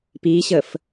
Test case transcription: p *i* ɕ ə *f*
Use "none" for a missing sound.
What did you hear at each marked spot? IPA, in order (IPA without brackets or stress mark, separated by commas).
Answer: i, f